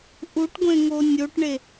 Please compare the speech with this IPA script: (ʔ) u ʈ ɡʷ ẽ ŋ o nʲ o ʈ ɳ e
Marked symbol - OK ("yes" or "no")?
yes